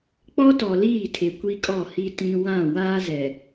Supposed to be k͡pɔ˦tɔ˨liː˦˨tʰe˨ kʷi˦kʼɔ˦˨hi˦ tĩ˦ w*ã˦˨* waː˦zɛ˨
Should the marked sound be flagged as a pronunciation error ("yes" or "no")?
no